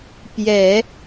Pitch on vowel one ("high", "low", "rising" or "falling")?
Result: low